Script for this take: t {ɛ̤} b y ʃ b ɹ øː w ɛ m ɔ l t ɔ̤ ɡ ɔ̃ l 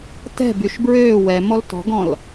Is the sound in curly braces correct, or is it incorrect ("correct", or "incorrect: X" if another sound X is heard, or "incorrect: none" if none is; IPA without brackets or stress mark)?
correct